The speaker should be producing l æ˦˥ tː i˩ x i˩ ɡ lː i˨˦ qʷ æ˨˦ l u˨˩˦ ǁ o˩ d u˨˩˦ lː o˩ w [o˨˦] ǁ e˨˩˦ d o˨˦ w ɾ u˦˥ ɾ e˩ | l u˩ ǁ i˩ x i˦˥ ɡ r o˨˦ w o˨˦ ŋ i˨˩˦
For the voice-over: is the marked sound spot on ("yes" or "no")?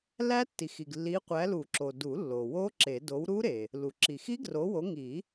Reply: no